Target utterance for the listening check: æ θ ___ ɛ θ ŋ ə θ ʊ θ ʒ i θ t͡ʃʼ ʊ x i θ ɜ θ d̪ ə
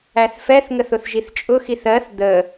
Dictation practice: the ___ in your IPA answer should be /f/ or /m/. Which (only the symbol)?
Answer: f